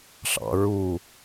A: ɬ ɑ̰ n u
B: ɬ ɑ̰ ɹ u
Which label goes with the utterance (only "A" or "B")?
B